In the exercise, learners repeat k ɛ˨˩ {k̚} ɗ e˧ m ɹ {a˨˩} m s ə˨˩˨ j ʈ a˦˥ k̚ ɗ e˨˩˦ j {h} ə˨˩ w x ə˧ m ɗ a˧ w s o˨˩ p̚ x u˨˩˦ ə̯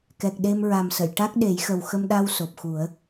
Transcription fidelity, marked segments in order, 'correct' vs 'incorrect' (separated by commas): correct, correct, incorrect